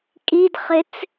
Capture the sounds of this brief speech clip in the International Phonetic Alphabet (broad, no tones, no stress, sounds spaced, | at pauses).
kʼ i d χ ɪ t͡s